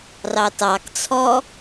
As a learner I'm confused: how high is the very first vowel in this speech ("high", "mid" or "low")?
low